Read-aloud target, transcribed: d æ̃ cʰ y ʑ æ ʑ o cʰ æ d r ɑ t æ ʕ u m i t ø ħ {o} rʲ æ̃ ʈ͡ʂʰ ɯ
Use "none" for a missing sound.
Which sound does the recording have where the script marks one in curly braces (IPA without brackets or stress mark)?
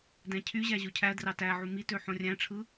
õ